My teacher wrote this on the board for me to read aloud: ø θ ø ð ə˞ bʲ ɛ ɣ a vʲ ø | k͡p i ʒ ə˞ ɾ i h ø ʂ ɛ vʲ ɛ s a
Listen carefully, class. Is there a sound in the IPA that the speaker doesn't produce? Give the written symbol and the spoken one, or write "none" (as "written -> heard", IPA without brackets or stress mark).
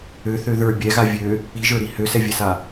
ʂ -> s